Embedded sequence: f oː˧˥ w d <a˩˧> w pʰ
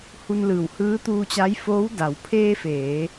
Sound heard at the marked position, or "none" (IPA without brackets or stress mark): a˩˧